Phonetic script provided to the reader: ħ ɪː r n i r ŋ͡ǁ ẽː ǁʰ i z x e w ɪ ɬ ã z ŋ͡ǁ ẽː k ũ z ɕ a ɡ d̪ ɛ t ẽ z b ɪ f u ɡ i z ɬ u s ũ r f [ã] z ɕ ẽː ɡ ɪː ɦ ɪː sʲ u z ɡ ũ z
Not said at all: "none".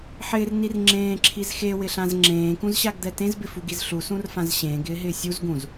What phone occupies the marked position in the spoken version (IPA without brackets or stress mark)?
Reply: ã